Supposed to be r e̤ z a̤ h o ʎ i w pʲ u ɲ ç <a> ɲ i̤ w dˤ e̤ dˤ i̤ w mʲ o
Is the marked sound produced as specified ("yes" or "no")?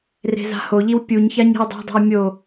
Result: yes